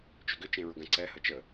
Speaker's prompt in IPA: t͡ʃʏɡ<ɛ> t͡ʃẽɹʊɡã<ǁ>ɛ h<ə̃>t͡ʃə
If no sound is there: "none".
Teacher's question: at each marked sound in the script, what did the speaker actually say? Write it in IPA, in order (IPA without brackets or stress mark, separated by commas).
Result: ʏ, ǀ, ə